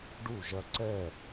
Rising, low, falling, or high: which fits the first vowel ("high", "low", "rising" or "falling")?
falling